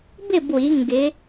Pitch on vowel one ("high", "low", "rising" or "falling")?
falling